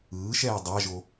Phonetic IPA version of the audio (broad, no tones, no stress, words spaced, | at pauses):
ɯːʃɛː dˤaʒo